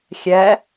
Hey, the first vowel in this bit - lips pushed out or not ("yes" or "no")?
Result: no